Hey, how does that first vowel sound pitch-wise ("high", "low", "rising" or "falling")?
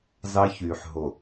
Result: high